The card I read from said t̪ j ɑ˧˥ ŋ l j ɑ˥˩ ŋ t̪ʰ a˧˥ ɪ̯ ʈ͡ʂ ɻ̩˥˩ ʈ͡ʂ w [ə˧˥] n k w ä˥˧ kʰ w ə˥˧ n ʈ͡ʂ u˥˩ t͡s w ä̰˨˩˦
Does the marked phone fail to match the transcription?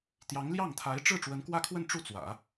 no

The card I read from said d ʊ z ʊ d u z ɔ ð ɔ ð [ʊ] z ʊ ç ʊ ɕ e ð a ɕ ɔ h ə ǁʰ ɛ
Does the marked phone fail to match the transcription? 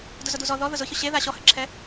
no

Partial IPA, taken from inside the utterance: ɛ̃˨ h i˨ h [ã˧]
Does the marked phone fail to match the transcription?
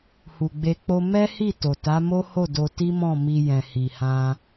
no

